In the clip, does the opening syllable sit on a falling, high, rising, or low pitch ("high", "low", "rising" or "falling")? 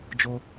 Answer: high